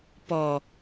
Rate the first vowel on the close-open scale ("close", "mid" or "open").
mid